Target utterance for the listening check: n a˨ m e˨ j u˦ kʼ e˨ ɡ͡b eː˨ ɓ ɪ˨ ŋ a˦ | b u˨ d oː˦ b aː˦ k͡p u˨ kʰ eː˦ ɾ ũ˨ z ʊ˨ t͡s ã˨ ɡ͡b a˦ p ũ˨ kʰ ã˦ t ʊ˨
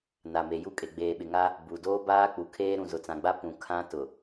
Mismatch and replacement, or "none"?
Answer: none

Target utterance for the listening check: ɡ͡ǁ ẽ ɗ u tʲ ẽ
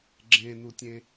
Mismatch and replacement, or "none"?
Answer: ɗ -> n̪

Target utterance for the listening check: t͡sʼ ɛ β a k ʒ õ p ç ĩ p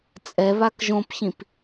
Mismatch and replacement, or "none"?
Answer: none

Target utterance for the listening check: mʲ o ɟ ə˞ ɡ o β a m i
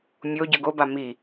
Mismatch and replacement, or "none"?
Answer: β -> b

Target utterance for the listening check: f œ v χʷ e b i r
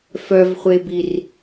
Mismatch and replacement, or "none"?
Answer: none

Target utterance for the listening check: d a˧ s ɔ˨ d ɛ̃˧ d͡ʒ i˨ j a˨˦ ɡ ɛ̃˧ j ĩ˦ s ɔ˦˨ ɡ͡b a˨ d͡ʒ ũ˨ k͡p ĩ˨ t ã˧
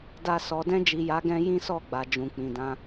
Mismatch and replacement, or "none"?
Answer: t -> d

